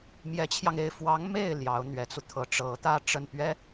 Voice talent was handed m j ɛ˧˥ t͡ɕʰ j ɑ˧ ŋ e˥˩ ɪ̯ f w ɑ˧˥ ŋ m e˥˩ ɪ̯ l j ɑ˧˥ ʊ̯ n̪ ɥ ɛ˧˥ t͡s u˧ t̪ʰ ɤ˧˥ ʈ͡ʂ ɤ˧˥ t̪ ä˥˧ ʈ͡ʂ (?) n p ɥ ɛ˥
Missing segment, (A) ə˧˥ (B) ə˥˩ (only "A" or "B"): B